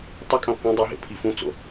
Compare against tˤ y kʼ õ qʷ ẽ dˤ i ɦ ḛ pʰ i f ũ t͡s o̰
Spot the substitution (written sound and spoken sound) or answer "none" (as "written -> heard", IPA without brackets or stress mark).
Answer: none